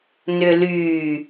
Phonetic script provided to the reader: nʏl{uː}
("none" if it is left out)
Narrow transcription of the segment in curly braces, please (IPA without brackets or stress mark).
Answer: yː